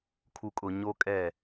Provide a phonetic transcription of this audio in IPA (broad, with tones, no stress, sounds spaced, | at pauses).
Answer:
kʰ u˨ kʼ ʊ˨ ɲ o˦ kʼ ɛ˦˨